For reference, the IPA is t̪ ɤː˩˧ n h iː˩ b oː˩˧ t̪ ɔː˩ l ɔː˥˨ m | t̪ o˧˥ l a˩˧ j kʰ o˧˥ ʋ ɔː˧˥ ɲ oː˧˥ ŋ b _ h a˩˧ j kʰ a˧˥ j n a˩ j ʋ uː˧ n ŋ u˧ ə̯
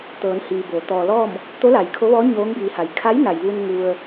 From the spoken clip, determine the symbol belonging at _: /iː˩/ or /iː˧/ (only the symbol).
iː˩